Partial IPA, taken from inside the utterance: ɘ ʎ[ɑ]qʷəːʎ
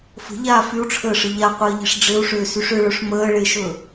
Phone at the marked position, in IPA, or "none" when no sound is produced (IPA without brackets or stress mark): a